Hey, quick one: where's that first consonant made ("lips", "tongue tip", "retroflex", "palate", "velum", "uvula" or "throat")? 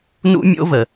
tongue tip